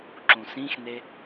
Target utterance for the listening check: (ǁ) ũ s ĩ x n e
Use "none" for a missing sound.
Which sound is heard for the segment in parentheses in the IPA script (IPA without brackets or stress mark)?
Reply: ǁ